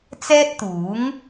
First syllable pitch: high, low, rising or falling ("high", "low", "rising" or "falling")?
high